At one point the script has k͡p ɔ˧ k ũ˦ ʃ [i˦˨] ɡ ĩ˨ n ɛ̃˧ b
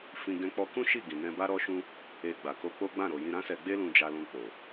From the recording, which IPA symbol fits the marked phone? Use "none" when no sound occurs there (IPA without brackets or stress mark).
i˦˨